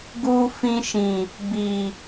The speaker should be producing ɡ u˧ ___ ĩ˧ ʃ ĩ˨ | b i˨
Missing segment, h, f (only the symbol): f